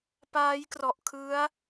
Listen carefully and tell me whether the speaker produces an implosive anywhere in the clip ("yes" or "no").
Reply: no